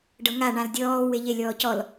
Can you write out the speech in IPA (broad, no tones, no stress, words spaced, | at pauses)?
ɖɤŋa ɳãldʲɔː weʎe lʲɔːcɔl